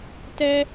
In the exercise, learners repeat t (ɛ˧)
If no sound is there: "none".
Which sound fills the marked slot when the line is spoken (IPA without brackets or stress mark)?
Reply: ɛ˧